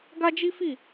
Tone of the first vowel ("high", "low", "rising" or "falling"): high